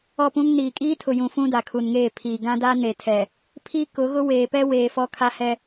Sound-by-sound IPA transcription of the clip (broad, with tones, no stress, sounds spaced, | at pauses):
ɔ˦˨ p ũ˦ ŋ n iː˨ kʼ iː˦ tʰ ʊ˨ j ũ˨ f ũ˦ d a˨ kʰ u˨ n ŋ eː˦˨ pʰ iː˨ ɡ ã˦ d a˦ n e˨ tʰ ɛ˨ | pʰ i˦ k ʊ˨˦ ɣ ʊ˦ w eː˨ p ɛ˦ w eː˨ f ɔ˦ kʰ a˦ h ɛ˦